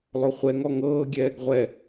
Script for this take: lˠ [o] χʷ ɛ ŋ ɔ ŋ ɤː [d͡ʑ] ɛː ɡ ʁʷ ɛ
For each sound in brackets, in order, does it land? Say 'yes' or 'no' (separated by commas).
yes, no